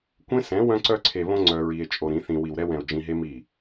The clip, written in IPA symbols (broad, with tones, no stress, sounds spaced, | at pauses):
kʷ ẽ˦ s ɛ̃˨˦ w œ̃˧ ǀ œ˧ ǀʰ e˨ β õ˧ ŋ͡ǀ œ˧ ɹ i˧ e̯ t͡ʃʼ o˧ ɾ ĩ˨˦ θ ĩ˧ w i˨ w ɾ ɛ˧ w ɛ̃˨ o̯ d͡ʒ ĩ˧ ɦ e˦ m i˦˨